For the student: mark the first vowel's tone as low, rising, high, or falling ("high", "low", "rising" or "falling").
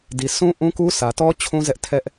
low